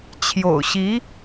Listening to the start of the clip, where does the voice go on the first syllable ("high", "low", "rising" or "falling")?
low